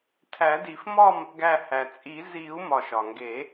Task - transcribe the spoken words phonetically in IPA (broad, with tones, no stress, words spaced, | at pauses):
tʰæ˨˩˦di˨˩˦fmɒ˥˧m | ɡæ˧˩hæ˩t͡sʼi˨˩˦ zi˨˩˦u̯mɒ˩ʃ ɒ˩ŋɡe˨˩˦